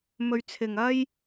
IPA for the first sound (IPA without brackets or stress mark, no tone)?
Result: m